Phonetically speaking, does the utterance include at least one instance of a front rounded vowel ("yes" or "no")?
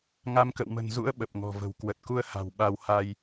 no